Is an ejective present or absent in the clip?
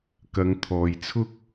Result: absent